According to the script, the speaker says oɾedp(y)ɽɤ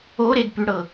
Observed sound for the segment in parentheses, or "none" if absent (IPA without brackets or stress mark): y